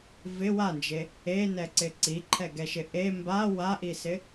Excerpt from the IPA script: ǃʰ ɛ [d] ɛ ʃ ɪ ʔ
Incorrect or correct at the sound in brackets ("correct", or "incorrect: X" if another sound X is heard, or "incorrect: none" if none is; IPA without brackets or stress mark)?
incorrect: ɡ